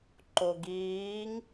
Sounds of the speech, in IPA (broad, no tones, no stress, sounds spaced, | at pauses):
ǃ o ɡ iː ŋ